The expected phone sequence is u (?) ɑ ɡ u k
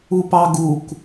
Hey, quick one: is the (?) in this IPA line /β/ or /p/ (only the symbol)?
p